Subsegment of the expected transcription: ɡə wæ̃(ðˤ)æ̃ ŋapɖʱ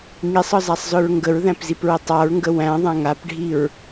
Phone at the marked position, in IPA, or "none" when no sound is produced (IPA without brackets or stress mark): ðˤ